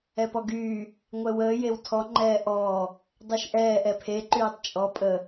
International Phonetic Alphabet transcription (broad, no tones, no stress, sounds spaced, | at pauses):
ɛ p ɔ ɡ yː | ŋʷ ɛ w əː j e w tʰ ɔ ŋ͡ǃ ɛː ʔ ɔː | dˤ e ʃ ʔ ɛː ʔ ɛ pʰ e ǃ yː tˤ t͡ʃʼ ɔ pʼ ə